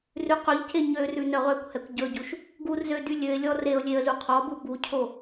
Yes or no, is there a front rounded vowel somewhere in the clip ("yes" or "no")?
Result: yes